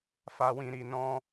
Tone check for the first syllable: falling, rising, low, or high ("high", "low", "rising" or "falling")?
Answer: low